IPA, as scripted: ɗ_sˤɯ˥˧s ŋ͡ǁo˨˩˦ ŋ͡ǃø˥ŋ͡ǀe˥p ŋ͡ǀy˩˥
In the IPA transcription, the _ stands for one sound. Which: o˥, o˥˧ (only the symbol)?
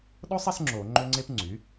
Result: o˥